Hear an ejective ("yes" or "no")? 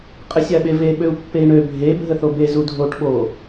yes